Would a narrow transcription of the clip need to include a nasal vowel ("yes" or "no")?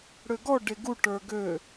no